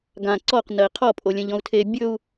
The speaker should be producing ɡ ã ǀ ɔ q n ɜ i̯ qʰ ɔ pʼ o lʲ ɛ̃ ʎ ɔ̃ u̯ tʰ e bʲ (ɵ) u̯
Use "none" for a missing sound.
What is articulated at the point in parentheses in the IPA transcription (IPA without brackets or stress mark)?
ɵ